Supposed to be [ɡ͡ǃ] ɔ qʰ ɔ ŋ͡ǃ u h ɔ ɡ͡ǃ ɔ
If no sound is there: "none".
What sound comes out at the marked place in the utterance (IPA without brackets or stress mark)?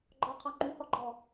ɡ͡ǃ